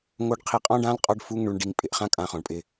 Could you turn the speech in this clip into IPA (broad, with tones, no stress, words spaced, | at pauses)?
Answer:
ŋo˧ɖ qʰi˧qʼɔ̃˦ɖã˦l qʼɔ˦ɖfu˦ŋ ɳu˧ɳɖi˧ŋpʼɪ˨ʔ χã˦kʼã˧ χɔ̃˨ɳpʼɪ˧